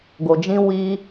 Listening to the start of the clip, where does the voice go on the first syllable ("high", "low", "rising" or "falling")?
low